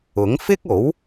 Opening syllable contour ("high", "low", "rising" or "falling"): rising